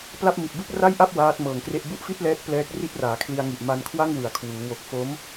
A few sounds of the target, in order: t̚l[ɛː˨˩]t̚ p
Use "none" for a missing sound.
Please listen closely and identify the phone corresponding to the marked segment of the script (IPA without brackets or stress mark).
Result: ɛː˦˥